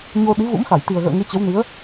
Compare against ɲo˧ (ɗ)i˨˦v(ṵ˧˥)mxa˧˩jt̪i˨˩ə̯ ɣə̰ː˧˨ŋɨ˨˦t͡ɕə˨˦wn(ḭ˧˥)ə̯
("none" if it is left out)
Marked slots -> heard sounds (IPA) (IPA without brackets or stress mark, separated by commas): ɗ, ṵ˧˥, i˨˦